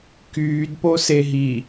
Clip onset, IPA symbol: k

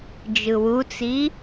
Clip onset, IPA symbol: d͡ʒ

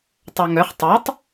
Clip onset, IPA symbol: tˤ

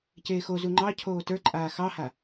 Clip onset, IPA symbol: c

